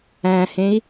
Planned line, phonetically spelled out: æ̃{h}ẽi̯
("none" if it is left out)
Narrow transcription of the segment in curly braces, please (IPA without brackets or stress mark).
h